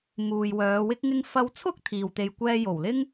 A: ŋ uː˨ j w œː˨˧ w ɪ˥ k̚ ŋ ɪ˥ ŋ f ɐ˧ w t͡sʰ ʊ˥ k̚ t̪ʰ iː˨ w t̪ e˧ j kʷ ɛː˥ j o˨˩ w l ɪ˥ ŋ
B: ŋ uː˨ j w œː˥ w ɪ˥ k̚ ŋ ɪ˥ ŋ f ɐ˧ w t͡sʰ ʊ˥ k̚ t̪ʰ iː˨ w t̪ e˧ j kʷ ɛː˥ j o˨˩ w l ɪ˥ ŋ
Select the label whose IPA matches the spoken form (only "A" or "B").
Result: A